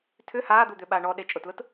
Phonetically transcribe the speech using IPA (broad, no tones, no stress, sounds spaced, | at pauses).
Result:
tʰ ʏ h aː d̪ u d̪ ʏ ɓ a ɳ ɔ ɗ e t͡ʃʼ ʊ t l ʊ t